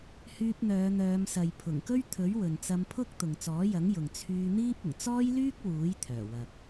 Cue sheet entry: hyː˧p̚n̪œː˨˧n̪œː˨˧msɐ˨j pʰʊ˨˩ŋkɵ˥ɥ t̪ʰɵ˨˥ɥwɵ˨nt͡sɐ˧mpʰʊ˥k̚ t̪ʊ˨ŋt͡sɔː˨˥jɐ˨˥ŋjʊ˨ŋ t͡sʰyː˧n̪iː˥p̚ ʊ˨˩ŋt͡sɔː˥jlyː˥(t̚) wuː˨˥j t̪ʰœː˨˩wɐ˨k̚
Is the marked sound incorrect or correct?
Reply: incorrect